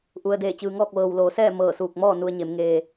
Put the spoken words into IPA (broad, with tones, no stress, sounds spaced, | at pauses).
ʔ u˩ ə̯ d eː˧˩ t͡ɕ ɯː˩ ŋ ɔː˥˨ k̚ ʋ ɤː˩ w l oː˩˧ s ɛː˥˨ m ɤː˧˩ s uː˧˩ k̚ m ɔː˥˨ n u˧ ə̯ ɲ e˩˧ m ŋ eː˧